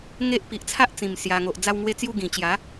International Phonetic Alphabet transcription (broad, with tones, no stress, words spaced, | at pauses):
ŋe˦ʔ pi˨ʔt͡sʰa˦ʔ t͡sĩ˨˩m sja˨˩ŋo˨ʔ d͡za˧wŋwe˧t͡sju˧ ɡĩ˨˩t͡ɕja˨˦